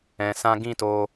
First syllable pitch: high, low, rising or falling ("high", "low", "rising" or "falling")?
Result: low